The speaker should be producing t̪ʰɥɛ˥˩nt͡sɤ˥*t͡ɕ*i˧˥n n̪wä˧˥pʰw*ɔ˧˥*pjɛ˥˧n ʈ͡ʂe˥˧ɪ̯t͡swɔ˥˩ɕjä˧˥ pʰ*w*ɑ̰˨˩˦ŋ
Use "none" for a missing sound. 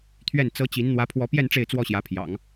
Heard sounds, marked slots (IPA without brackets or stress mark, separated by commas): t͡ɕ, ɔ˧˥, j